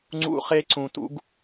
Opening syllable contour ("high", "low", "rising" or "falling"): high